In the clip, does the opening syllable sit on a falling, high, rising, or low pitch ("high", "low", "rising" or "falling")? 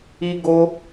high